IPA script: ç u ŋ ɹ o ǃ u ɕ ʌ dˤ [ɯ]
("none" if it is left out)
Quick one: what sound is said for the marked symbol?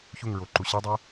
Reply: ɯ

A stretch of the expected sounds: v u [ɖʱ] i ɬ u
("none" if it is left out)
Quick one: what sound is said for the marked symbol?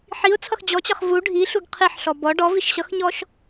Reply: ɖʱ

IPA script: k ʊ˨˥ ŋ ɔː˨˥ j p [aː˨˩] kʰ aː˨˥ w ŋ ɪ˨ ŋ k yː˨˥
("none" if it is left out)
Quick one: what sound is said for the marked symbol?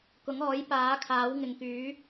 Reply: aː˨˥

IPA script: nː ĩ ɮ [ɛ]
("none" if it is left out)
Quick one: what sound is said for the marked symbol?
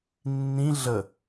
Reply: ə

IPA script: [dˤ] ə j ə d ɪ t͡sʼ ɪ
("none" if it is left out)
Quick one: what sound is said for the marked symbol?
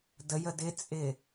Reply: d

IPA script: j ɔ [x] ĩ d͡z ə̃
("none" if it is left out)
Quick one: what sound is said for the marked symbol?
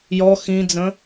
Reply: x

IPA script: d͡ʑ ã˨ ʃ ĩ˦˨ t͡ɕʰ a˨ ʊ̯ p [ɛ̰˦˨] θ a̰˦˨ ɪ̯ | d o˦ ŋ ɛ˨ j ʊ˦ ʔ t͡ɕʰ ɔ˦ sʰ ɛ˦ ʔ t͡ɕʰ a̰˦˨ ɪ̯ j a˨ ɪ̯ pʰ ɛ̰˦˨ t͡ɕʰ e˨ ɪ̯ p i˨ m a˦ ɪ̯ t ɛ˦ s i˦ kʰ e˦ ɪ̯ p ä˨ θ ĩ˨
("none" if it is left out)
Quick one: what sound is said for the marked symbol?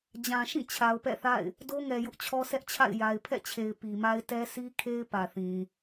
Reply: ɛ̰˦˨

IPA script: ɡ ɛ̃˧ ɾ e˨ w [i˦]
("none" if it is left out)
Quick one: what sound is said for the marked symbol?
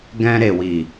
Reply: i˨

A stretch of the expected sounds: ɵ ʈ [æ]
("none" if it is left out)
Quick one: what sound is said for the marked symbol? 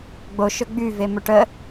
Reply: ə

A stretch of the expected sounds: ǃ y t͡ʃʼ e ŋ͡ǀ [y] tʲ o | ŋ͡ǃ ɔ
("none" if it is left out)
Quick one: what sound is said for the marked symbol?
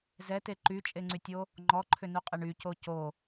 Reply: y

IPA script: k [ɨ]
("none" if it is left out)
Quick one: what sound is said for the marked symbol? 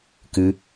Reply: ɨ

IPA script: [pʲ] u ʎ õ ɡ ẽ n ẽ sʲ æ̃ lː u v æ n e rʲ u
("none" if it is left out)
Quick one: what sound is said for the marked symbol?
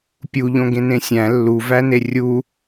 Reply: pʲ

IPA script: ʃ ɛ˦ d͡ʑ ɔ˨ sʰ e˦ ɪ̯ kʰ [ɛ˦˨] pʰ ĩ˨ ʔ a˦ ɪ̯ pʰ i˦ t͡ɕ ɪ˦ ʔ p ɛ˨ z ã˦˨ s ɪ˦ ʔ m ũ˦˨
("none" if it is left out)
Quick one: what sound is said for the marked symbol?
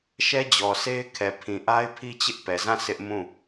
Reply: ɛ˨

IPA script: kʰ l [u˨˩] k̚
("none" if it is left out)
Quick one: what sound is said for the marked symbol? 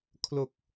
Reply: o˨˩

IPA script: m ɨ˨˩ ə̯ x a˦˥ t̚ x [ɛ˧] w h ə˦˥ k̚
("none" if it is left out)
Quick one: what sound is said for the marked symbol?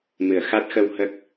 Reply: ə˧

